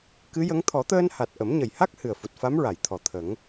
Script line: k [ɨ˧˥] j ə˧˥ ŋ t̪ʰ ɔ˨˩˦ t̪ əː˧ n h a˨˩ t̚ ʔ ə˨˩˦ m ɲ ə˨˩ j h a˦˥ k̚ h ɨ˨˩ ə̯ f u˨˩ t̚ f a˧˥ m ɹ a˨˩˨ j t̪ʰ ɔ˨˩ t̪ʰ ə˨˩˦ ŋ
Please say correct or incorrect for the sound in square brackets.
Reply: correct